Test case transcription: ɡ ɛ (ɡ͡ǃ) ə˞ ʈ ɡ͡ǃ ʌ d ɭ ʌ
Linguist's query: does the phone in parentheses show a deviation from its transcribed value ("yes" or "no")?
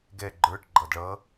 no